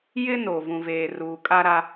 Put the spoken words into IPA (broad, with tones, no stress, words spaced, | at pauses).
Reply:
jɪ˦no˨ vũ˨veː˨ ruː˨kʼa˦ɾa˦